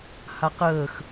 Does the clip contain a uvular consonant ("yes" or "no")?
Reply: yes